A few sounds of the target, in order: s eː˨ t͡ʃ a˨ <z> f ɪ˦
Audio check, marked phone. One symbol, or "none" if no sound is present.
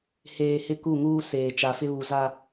none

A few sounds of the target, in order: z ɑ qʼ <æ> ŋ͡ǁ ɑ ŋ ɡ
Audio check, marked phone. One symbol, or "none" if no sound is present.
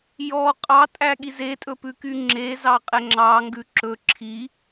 ɛ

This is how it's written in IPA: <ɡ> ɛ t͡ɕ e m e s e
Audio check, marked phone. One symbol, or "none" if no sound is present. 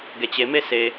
ɡ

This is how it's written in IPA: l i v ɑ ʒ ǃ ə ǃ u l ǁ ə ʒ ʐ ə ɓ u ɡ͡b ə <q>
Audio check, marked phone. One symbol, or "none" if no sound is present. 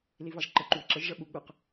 q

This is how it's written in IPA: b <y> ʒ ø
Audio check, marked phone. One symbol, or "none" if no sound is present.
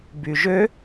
y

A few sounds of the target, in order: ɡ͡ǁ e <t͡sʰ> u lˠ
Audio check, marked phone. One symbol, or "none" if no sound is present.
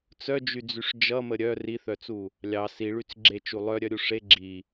t͡ʃ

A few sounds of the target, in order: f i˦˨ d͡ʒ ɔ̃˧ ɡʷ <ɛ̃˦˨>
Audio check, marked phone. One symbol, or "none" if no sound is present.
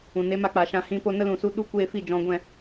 ɛ̃˦˨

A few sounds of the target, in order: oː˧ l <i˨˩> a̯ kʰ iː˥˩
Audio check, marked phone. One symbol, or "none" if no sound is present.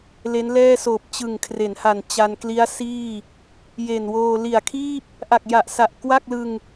i˨˩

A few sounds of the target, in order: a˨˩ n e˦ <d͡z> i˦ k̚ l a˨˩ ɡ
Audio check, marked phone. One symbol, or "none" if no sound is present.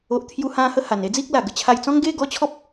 d͡z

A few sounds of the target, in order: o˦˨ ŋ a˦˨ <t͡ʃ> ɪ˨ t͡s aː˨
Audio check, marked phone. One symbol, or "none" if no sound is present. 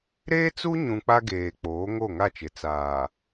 t͡ʃ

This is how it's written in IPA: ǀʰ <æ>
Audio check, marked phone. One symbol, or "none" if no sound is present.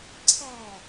æ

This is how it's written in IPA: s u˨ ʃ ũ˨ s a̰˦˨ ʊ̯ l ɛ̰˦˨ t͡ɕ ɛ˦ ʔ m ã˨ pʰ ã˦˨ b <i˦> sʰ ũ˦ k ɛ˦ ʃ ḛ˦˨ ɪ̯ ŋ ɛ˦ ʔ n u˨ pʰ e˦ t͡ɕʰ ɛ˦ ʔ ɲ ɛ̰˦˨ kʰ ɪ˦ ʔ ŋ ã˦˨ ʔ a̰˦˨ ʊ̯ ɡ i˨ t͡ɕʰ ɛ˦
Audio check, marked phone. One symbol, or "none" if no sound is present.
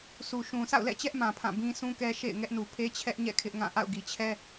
ĩ˦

